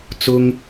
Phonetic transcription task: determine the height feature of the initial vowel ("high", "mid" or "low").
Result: high